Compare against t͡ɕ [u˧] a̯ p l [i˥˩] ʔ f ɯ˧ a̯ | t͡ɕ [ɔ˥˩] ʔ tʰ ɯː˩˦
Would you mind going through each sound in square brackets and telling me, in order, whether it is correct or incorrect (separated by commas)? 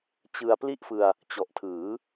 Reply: incorrect, correct, incorrect